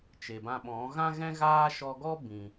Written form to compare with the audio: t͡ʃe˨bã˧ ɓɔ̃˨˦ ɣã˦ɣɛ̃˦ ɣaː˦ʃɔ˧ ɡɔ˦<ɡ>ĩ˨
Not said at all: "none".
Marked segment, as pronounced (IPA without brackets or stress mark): b